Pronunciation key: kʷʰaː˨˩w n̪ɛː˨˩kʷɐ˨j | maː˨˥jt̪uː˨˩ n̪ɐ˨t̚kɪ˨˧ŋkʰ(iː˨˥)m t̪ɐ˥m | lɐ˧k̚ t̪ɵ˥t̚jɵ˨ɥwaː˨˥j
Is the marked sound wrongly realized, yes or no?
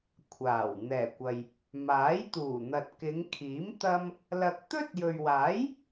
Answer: no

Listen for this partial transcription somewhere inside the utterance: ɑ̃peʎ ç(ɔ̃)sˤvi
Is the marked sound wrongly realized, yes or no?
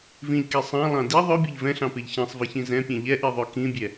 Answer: yes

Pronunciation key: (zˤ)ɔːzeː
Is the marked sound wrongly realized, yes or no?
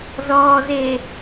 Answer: yes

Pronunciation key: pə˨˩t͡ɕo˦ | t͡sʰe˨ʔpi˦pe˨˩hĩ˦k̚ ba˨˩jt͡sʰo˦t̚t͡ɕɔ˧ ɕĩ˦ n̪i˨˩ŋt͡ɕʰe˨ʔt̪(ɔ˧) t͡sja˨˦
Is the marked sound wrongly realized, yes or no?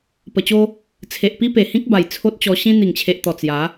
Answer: yes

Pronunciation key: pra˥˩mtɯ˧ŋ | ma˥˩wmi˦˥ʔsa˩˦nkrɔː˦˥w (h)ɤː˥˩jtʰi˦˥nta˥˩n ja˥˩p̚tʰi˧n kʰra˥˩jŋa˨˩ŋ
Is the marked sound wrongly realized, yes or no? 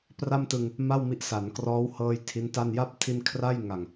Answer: no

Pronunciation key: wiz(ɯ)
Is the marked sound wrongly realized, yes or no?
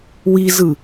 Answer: no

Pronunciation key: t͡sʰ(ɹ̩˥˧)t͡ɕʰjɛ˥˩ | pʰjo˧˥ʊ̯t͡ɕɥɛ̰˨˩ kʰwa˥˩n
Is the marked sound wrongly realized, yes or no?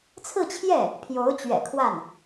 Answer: no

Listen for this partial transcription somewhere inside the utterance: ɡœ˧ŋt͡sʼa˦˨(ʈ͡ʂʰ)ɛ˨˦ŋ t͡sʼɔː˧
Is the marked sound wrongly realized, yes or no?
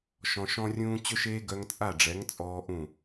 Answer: yes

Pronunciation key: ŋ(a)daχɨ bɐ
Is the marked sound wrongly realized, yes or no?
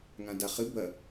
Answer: yes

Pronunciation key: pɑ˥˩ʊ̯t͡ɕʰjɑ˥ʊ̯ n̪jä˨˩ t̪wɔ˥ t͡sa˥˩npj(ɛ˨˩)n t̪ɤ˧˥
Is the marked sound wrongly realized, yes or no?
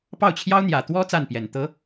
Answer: no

